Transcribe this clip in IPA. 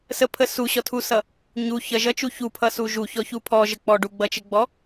s ə pʰ ə s u ɕ ɔ tʰ u s ʌ | ɲ u ç ʌ ʒ ʌ t͡ʃ u ç u pʰ ʌ s u ʒ u ç ɔ ç u pʰ ɔ ʒ ə k͡p ɔ ɖ u ɡ͡b ʌ t͡ʃ ə ɡ͡b ɔ

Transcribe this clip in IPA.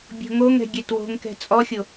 bʲ o̤ ŋ o ŋ ɛ̤ ɡʲ ɛ t w o̤ ŋ k ɛ̤ t͡sʼ ɔ xʲ o

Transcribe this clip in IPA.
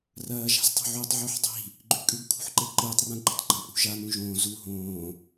r ɐː ʒ a̤ z tˤ o̤ ʕ u tˤ ʕ o ħ dˤ i̤ | ɡ͡ǃ ʉ kʼ ʉ ɡ kʰ ṳ ħ ǃ e ǃ ɨː tˤ r ã ɡ ɡ͡ǃ ɐ̃ tˤ ɡ͡ǃ ɐ̃ pʼ ṳ ʒ a n ũ ʒ õː z u ɦ õː

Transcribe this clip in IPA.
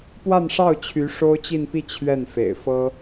p w a˥˧ n ʂ ɑ˥˩ ʊ̯ t͡ɕʰ y˧˥ ʂ o˥ ʊ̯ t͡ɕ i˥˧ n p i˥˧ t͡ɕʰ ɥ ɛ˥˩ n f ḛ˨˩ ɪ̯ f ɤ˥

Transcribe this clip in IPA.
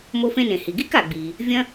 m o˧ f ẽ˧ n ẽ˩ h i˩ ɡ i˥ k a˩ ɡ͡b iː˩ | vʲ ɐ̃˧

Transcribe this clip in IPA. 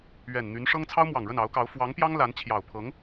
ɥ ɛ˨˩ n n̪ y˧˥ n ʂ ɤ˥ ŋ t͡sʰ ɑ˥ ʊ̯ m w ɑ˨˩ ŋ ɻ ə˥˩ n ɑ˧˥ ʊ̯ k ɑ˧˥ ʊ̯ f w ɑ˧˥ ŋ p j ɑ˥ ŋ l a˧˥ n t͡ɕʰ j ɑ˨˩ ʊ̯ pʰ ɤ˧˥ ŋ

